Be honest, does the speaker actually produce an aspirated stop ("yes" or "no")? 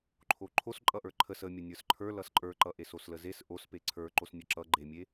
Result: yes